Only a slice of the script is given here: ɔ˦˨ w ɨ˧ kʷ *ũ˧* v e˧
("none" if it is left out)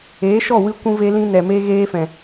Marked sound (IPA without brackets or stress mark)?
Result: ũ˧